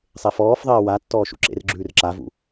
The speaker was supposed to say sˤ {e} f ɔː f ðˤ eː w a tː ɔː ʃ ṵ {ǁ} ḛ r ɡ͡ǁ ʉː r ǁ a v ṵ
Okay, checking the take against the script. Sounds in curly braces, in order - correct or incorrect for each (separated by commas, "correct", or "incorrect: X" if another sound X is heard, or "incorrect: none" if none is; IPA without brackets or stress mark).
correct, correct